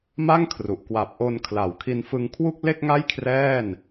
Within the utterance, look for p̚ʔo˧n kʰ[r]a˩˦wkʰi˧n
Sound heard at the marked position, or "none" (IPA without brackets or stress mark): l